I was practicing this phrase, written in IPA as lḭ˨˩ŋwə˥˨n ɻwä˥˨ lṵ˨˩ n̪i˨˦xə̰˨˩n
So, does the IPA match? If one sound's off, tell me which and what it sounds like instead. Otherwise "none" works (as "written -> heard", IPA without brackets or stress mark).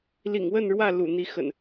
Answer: none